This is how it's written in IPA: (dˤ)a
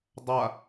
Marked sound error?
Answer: no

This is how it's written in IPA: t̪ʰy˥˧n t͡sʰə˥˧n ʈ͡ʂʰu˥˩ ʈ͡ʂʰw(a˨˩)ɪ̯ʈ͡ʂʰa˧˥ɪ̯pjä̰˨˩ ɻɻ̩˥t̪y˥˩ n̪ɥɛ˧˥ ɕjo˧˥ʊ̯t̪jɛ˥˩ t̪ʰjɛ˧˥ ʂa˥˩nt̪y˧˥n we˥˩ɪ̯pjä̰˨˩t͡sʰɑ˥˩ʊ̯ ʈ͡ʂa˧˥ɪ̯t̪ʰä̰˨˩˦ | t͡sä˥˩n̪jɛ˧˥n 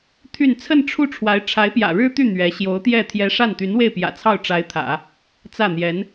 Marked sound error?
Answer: yes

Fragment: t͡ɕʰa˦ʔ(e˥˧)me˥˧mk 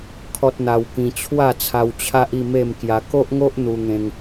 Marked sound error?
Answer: yes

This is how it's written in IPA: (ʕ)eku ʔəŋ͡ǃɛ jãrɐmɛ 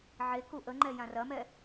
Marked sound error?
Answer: no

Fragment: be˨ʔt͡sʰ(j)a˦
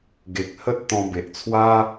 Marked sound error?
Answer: yes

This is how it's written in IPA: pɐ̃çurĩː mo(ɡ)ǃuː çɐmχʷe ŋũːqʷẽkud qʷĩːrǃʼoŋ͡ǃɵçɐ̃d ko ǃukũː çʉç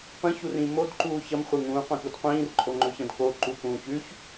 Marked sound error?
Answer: yes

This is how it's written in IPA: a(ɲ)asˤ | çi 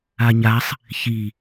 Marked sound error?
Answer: no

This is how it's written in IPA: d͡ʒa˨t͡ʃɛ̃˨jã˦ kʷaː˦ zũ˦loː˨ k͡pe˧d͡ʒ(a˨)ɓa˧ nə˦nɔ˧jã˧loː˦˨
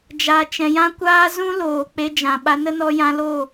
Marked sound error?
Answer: yes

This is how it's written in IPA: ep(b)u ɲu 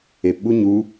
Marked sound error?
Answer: yes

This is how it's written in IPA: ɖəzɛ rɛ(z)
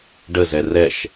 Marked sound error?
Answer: yes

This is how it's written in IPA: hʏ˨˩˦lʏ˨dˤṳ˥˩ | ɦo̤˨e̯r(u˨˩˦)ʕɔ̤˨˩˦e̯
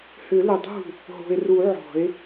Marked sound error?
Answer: no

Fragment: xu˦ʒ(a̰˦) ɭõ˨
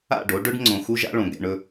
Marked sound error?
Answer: no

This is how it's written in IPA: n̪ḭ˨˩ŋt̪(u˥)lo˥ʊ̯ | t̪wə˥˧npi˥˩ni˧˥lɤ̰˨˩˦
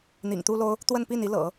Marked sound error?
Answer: no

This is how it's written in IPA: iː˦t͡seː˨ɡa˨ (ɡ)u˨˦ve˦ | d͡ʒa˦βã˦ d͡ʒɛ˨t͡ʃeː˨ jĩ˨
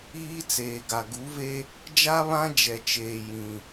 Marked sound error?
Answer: no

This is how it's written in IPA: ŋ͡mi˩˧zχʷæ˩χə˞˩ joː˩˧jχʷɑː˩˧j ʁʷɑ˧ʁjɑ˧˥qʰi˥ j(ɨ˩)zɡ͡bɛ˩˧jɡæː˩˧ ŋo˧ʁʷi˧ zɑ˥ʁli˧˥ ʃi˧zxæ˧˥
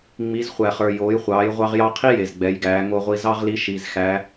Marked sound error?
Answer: yes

